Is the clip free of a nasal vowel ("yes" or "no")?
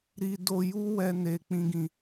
no